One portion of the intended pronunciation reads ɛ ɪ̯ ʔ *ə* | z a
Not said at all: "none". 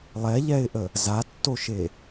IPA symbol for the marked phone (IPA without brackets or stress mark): ə